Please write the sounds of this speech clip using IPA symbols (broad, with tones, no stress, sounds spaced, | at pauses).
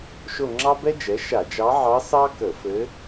ʃ o˦˨ ŋ͡ǁ ɑ˥ b ɛ˥ d͡ʒ ɛ˩˥ ʃ a˧˩˧ d͡ʒ ɑ˧˥ ʕ ɑ˧˥ s ɑ˥ k ə˧˩˧ f ɘ˧˥